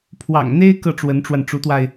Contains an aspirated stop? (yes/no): yes